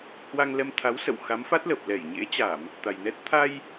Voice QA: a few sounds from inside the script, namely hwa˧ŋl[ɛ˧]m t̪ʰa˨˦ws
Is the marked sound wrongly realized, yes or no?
no